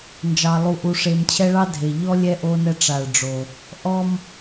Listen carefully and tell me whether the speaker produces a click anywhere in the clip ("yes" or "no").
no